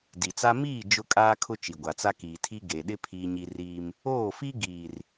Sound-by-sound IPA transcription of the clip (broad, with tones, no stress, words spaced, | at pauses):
di˨t͡sa˦ miː˦˨ d͡ʒʊ˦kʼaː˦kʰʊ˦ t͡ʃi˨ɡʷa˨t͡sa˦ kiː˨tʰi˦ ɡe˨ɗɪ˦ pʰiː˦ɲi˦riː˦m | oː˦˨fi˦ ɡiː˨r